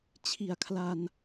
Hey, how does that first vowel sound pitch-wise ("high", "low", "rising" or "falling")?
low